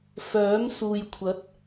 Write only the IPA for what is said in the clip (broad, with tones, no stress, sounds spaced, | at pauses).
f œː˨˥ m s uː˨ j kʷʰ ɐ˨˥ t̚